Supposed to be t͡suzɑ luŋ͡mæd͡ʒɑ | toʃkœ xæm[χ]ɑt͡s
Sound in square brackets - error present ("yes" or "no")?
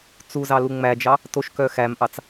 yes